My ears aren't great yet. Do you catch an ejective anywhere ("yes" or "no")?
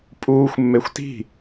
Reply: yes